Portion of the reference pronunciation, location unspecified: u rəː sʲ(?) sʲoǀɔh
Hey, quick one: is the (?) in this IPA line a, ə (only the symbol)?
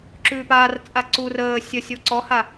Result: ə